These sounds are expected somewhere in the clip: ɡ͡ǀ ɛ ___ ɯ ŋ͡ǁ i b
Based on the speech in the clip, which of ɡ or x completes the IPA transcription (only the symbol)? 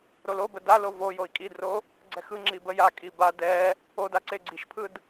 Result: x